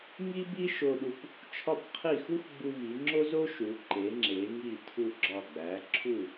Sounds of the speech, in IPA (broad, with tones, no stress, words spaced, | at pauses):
ŋi˥bi˥ ʃo˧ɗu˧p | t͡ʃʰɒ˥˧p qʰi˧˩xu˥x ɡ͡bu˧vi˩˧ŋ͡ǁo˥zo˥ ʃu˩˧ǃe˩˧ŋ͡ǁe˩˧ŋi˧˩ tʰu˧˩ɡ͡ǁɒ˧˩ɡ͡bæ˩˧ ǁʰu˧˩